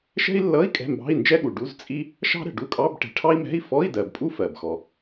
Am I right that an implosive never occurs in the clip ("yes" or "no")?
no